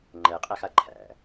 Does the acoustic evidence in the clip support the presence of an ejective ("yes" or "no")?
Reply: yes